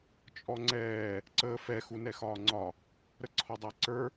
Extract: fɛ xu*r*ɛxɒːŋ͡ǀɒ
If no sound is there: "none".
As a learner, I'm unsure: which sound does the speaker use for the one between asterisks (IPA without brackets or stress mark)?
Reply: n